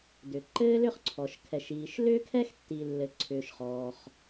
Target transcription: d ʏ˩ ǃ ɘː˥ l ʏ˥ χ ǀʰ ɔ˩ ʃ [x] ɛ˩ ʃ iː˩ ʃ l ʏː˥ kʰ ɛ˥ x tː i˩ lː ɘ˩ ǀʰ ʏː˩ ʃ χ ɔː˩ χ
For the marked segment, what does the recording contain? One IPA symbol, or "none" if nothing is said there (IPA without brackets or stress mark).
kʰ